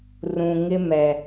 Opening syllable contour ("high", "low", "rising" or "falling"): low